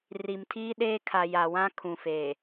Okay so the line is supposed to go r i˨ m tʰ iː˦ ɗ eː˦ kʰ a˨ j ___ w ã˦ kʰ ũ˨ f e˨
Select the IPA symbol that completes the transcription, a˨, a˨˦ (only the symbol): a˨